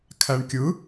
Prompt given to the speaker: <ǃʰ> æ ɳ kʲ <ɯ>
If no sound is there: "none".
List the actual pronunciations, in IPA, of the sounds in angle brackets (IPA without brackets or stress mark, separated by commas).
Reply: kʰ, ɯ